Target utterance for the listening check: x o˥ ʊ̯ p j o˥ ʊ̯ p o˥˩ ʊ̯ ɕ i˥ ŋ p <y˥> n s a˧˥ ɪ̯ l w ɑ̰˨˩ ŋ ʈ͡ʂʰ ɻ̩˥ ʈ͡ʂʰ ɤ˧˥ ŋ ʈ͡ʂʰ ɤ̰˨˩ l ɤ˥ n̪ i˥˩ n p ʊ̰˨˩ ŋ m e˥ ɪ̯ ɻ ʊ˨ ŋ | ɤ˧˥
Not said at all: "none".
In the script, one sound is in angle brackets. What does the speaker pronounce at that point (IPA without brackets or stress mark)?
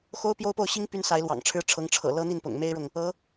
y˥